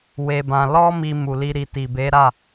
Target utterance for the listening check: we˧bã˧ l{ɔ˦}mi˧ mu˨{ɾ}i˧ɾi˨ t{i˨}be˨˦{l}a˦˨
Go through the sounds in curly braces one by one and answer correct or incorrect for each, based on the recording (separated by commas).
correct, incorrect, correct, incorrect